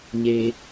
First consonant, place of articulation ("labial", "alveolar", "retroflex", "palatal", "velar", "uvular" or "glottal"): palatal